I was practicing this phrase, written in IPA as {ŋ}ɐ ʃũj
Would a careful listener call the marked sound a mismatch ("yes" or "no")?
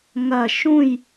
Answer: no